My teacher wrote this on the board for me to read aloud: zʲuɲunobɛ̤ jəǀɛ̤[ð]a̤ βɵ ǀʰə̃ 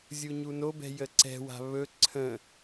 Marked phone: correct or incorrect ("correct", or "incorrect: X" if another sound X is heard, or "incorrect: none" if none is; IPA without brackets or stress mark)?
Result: incorrect: w